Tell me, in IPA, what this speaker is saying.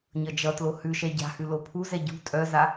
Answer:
ɲ ʌ d͡ʒ ʌ t l o h ʉ ʃ ɛ ɟ a̤ h ʉ l o pʰ u z ɛ ɟ ṳ tʼ œ z a

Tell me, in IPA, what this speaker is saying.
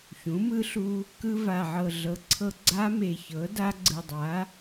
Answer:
ç ũ˩˥ m ɯ˦˥ ɬ u˧ | k ɯ˧ v a˨˩ ʕ ɤ˨˩ ɮ ɤ˩˥ ǀʰ ɤ˧ ɡ͡ǀ a˦˥ m e˨˩ ç ɤ˩˥ d a˦˥ ɡ͡ǀ ɯ˨˩ dˤ a˩˥

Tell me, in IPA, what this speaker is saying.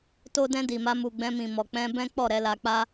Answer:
t o˧ d ɛ̃˧ d i˨ m a˧ m u˨ ɡ͡b ɛ̃˧ m ĩ˨ m ɔ˨ k͡p ɛ̃˧ b ɛ̃˦ k͡p ɔ˦˨ ɾ ɛ˨˦ l a˧ k͡p a˦

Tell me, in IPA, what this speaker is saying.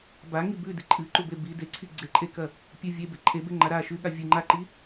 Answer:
b a ŋ i b ʉ d i ǃʼ ɨ ǃ u b e b i d e ǀʰ i ɡ͡ǀ e ǃʼ e k ɐ | pʲ ɨ vʲ e b e ǃʼ e b e ŋ͡ǃ a ɾ a ʃ ʉ ɠ a vʲ ɨ ŋ͡ǃ a ǃ i

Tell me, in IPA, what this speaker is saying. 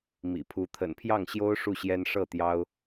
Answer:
m ḭ˨˩ pʰ u˧˥ t̪ʰ ə̰˨˩ n pʰ j ɑ˥˩ ŋ ɕ j o˥ ʊ̯ ʂ u˥˩ ɕ j ɛ˥ n ʂ ɤ˥˩ t̪ j ɑ˥ ʊ̯

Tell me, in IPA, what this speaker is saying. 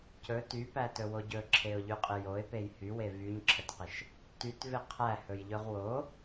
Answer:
c ɵ t y p æ t ɵ w o ɟ ɵ ǁʰ e ʊ̯ ʎ y qʼ ɪ j o ɪ̯ p e j h y w e v y ɲ ǁʰ ə t q ɪ ʃ | t y t v ɪ qʰ æ h ɵ j ʎ ɵ ʁ w o

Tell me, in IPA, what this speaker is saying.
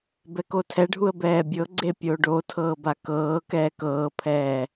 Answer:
b ɛ k o tʰ ɛ ɖʱ u ə̯ b ɛː bʲ ɤ ɡ͡ǀ e pʲ o ɖ o tʰ ɤː b a k ɤː k ɛː k ɤː pʰ ɛː

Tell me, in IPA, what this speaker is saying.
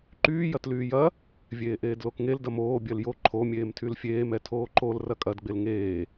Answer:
ǃ yː j ɐ t l yː j ɐ | vʲ eː ʔ eː d l o k ŋ e l d ɐ m oː bʲ ɜ l j o ǃʰ o mʲ eː m tʰ y l fʲ eː m ɛ tʰ oː ǃ o l r ɐ kʼ ɐ d ɡ͡b e l ŋ eː

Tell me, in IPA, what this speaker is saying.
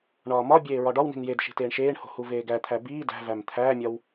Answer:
ɳ ɒː m ɒ bʲ eː ɹ ɒ ɖ ɒ w n i̤ n j e d ʃ i̤ t eː ɳ ʃ eː ɳ h o̤ h u v eː ɡ æ t̪ʰ æ b iː d æ̤ v æ m t̪ʰ æː mʲ ɒ w

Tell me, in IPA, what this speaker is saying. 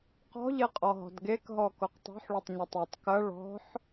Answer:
q ɔ̤ ʎ e qʼ ɔ ɦ ɔ̤ d ɡ e k ɦ ɔ k o q tˤ o̤ ħ ɭ o tˤ ɲ ɐ tˤ e tˤ k ɐ ɭ ɔ̤ ħ

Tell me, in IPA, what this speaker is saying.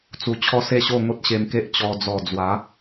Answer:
t͡s u˧ t͡ɕʰ ɔ˦ s e˥˧ ɕ o˥˧ ŋ o˦ t̚ ɕ e˧ m k e˦ ʔ t͡ɕ ɔ˧ d͡z ɔ˨˩ d͡z w a˨˦

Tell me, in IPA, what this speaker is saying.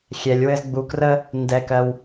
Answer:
xʲ ɛ˨ lʲ w ɘ˦ z ɡ͡b u˧ k r ə˦ | n d ɛ˧ k ɜ˧ w

